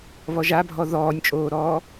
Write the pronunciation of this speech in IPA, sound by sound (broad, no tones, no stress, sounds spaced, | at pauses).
β ɔ ʒ a bʱ ɔ ð ɔː nʲ t͡ʃʼ oː ɾ ɔː